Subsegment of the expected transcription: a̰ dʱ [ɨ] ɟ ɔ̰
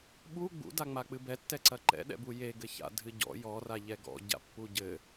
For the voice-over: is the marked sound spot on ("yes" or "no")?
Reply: yes